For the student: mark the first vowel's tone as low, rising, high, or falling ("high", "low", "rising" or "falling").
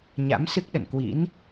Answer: rising